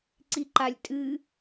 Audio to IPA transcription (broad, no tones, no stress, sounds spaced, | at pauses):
ǀ i ǃ a lʲ tʼ ɨ